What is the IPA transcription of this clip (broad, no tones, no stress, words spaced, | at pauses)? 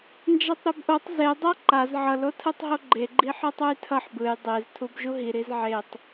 nd͡ʒatˤɾobʔotˤ zedˤa ǃaz ʕʌlotʰɯtˤɦo ɡ͡ǃeɡ͡ǃi ħɯtˤujtʰʌħ bɯj dˤez tʰubʒuɦi ɾizʕetˤ